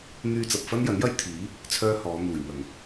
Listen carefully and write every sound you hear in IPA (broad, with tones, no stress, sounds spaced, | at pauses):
n̪ yː˧ t͡s ɐ˨ p̚ f ɐ˥ n j ɐ˨˥ n j ɐ˥ j t̪ʰ iː˨˥ | t͡sʰ œː˥ h ɔː˨˧ n̪ uː˨˩ j n̪ ɐ˨˩ ŋ